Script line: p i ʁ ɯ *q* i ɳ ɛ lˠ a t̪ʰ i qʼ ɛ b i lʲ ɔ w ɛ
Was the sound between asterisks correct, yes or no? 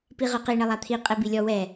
yes